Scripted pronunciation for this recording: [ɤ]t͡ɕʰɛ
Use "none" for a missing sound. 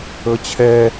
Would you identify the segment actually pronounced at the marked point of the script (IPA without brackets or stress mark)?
ɤ